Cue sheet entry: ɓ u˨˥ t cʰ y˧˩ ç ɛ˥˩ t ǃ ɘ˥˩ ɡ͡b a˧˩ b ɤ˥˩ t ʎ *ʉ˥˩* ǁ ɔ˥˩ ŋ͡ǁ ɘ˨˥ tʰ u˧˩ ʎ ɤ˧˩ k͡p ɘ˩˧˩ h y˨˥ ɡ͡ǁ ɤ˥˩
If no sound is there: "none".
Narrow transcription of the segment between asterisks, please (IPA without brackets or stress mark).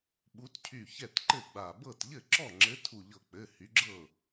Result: ɘ˥˩